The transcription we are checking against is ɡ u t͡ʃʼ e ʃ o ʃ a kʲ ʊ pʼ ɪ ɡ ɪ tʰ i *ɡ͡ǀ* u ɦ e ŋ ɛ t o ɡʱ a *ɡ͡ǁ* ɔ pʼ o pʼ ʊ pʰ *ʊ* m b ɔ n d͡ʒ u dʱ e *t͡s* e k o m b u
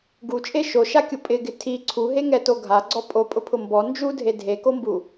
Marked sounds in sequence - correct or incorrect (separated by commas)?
incorrect, incorrect, correct, incorrect